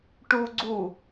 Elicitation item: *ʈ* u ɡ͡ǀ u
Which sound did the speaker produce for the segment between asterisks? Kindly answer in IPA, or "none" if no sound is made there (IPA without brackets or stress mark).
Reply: ʈ